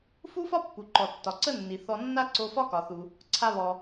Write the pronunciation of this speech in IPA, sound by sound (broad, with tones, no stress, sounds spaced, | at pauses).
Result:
f u˥ f ɒ˥ pː u˩ ǃ ɔ˩ tː ɒ˩ ǀ ə˥ nː i˩ θ ɔ˧ nː a˥ ǀ o˧ f ɒ˥ k ɒ˩ θ u˩ | ǀʰ a˧ β ɔ˩